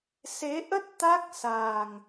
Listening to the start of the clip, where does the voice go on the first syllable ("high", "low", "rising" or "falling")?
rising